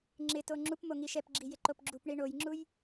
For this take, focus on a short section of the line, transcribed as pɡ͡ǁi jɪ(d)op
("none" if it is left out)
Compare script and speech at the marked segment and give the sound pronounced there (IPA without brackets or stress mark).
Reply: ǃ